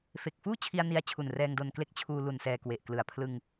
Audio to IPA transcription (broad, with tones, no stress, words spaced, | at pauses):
fe˨˩k̚fuː˥˩t͡ɕʰi˧a̯ ni˧a̯t͡ɕʰu˨˩nrɛː˧ŋdo˧n kle˦˥k̚t͡ɕʰuː˧lu˨˩n sɛː˧kwe˨˩ʔklɯ˨˩a̯ pʰlɯ˧ŋ